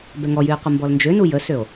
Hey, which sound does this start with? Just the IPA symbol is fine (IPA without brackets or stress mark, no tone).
b